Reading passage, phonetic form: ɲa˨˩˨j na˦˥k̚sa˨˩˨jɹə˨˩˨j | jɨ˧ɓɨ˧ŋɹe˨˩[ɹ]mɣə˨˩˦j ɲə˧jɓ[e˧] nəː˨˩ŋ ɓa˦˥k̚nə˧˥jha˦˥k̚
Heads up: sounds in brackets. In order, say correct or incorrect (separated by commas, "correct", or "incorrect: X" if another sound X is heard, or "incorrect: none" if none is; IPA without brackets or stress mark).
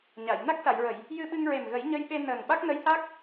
incorrect: none, correct